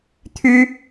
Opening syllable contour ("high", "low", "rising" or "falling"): high